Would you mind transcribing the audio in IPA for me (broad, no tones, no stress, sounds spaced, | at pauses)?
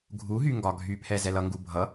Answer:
ɡʱ u ɦ y ŋ ɡ ɒ ɡʱ y pʰ ɛ z ɛ l ʌ ŋ ɡ u bʱ ʌ